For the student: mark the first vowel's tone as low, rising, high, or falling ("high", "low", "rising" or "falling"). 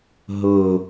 low